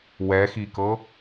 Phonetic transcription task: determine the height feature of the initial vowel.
mid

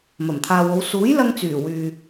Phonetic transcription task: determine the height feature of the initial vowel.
low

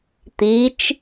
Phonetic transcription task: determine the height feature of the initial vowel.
high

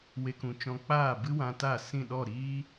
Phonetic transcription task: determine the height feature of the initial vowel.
mid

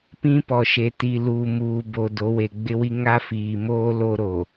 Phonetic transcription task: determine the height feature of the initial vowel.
high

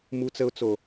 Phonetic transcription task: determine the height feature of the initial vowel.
high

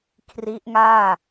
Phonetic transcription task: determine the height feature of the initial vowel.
high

